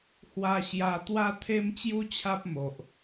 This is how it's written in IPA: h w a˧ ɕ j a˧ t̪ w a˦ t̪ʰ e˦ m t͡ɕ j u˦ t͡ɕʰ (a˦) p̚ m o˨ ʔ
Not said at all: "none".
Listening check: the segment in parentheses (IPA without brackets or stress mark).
a˦